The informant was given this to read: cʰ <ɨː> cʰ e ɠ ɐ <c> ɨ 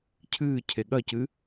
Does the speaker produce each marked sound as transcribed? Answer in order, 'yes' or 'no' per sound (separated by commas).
yes, yes